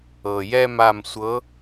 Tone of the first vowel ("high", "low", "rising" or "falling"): low